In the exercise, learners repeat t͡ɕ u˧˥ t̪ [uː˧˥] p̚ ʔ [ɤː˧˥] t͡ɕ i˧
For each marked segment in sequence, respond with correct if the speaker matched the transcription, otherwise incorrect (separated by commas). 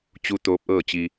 incorrect, incorrect